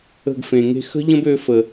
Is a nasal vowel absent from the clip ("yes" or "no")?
no